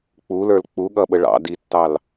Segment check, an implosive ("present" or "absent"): present